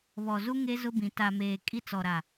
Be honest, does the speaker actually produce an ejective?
yes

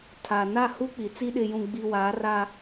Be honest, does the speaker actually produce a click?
no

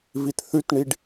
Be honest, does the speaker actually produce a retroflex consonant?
yes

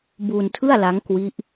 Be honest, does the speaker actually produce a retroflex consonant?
no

